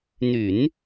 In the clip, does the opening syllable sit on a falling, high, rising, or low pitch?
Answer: low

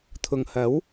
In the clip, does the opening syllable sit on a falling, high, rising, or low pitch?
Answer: low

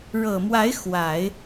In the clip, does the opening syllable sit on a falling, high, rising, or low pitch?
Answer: low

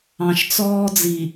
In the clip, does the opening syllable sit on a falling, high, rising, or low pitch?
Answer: low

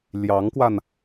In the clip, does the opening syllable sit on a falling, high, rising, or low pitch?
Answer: rising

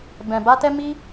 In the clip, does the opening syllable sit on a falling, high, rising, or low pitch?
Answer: low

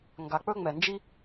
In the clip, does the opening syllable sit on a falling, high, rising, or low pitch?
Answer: low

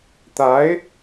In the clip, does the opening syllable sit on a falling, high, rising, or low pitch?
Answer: rising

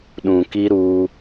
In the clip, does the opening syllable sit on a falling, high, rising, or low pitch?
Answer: low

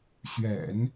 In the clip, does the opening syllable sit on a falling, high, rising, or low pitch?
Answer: low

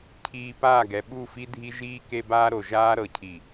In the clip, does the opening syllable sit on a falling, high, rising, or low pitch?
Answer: low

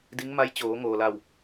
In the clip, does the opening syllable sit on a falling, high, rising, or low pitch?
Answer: rising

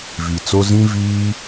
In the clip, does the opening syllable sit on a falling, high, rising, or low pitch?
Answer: low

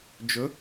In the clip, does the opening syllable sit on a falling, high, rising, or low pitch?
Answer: rising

